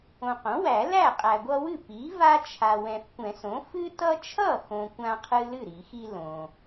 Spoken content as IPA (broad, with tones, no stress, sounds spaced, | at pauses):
õ˨ q õ˩˥ w æ˨˩˦ l æ˥˩ qʼ æ˨ ɡʷ ʌ˦ w ɨ˥˩ p i˩˥ v a˦ t͡ʃʰ a˨ w ɛ̃˨ f kʷ ɛ̃˨˩˦ s õ˩˥ f ɨ˦ t ʌ˦ t͡ʃʰ ʌ˥˩ x õ˨ kʷ ã˦ qʰ ɨ˦ l ɨ˥˩ ɾ i˨˩˦ x i˦ l õ˨